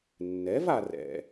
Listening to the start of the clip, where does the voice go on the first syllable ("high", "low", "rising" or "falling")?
rising